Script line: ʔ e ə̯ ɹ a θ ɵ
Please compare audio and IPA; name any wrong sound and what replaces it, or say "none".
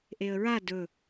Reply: θ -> d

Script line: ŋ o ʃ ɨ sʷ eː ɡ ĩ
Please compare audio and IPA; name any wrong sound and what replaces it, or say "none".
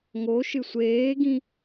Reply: none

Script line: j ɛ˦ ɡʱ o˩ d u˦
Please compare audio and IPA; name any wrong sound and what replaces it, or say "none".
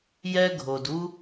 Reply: none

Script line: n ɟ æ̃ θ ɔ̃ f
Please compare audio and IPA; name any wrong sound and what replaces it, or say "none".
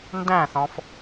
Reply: ɟ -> d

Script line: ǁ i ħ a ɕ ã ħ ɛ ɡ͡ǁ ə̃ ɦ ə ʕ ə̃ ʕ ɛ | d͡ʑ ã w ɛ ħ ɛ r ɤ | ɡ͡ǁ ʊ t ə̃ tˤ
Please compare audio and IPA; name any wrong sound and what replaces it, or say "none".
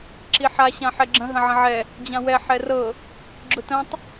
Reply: ə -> ə̃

